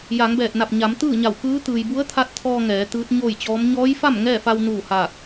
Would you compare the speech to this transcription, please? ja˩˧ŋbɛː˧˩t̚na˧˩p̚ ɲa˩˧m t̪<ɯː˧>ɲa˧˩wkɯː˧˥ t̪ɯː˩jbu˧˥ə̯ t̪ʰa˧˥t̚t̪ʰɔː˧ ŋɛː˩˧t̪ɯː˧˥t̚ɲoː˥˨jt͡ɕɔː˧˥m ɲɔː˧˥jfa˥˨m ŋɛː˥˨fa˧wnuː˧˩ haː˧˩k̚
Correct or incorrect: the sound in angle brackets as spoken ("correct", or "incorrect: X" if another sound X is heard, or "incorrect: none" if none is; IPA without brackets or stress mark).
incorrect: ɯː˥˨